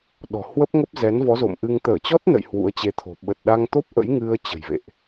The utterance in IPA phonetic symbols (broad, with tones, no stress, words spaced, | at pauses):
ɗɔ̤˨˩hwə˦˥p̚ŋə˦˥p̚ zɛ˨˦nvɔ˨˦zo̰˧˨mʔɨ˧ŋ t̪əː˧˩t͡ɕɔ˦˥t̚nə̰˧˨j hwṵ˧˥ə̯t͡ɕe˧t̪ʰo̤˨˩ ɓə˨˩t̚ɗa˧ŋt̪o˦˥p̚ ʔə̰˧˥jŋɨ˧ə̯ t͡ɕə̤˨˩jvḛ˧˨ʔ